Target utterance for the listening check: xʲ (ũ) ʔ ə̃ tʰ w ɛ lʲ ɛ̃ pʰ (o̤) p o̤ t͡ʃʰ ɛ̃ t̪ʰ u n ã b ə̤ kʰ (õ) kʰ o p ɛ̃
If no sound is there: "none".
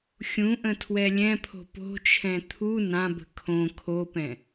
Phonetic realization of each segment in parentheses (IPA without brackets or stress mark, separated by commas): ũ, o̤, õ